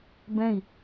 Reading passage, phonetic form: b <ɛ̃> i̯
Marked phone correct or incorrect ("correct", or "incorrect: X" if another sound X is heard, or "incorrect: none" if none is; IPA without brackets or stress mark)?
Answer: correct